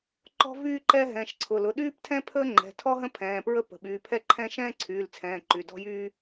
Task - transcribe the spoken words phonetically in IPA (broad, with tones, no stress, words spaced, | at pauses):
ǃɔ̤˥vyː˥ǃɛ˥ ɦɛ̃˩˧˩ʃǀʰʊ˩˧˩lʊ˩˧˩ ɗyː˥ptʰɛ̃˥pʰəː˥ ŋ͡ǃɛ̤˩˧˩tʰɔ˥ɦə̃˥ pʰɛ̃ː˩˧˩pɹə˥ pə̤˩˧˩ɓyː˩˧˩pʰɛ˥ǃʰɛ̃˥ ʃɛ̃ː˥ǀʰyː˩˧˩lt͡sʰɛ̃ː˩˧˩ ǃy˩˧˩dɔ̤˥jyː˥